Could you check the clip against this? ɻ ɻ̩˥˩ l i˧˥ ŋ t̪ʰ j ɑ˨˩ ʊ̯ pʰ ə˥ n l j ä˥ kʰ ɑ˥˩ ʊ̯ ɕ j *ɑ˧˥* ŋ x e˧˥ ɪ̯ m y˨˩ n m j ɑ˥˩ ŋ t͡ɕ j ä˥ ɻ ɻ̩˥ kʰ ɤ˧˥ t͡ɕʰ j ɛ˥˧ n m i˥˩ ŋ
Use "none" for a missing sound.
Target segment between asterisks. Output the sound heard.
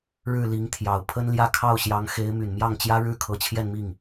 ɑ˧˥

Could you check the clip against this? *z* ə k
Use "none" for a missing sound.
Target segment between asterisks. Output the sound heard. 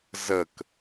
z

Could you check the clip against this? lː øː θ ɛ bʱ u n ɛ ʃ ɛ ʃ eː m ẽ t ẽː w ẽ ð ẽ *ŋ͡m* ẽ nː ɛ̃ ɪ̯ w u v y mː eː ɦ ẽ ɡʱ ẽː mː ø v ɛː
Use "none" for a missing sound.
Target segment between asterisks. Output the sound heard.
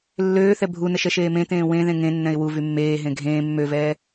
ŋ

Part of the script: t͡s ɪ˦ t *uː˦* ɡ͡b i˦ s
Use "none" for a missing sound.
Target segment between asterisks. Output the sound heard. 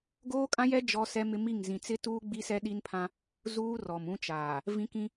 uː˦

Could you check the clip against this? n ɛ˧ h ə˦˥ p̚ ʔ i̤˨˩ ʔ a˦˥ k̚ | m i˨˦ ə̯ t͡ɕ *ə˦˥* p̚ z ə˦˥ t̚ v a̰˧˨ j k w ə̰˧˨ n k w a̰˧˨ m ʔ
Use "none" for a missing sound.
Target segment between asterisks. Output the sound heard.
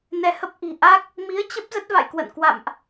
ə˦˥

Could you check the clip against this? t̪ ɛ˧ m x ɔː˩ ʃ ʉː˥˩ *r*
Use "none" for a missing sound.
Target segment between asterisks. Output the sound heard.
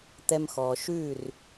r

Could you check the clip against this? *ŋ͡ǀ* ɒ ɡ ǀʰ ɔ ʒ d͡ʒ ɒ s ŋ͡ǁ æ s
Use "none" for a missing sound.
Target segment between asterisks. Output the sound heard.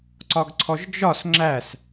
ǀ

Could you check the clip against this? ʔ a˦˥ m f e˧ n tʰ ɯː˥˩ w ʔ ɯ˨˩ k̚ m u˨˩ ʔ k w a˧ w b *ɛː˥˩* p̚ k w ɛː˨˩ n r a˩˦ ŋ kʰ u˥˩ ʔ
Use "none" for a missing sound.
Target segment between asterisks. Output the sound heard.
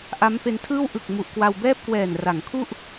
ɛː˥˩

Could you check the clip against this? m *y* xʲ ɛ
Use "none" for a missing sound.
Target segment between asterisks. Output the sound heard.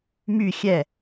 y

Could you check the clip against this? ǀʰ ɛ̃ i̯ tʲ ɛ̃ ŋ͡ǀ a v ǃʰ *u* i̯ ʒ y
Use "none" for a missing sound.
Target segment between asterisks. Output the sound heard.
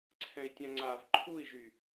u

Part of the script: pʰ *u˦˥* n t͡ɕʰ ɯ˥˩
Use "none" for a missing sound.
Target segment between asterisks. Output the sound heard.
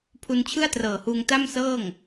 u˧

